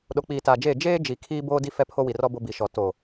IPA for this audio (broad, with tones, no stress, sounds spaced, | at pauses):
ɗ o˨ k͡p iː˨ t aː˨ d͡ʒ eː˦˨ d͡ʒ eː˦ d͡ʒ i˨ kʰ iː˦ b oː˦ d i˦ f ɛ˦ pʰ o˦ w i˨ r ɔ˦ b o˦ b i˨ ʃ ɔ˨ t o˨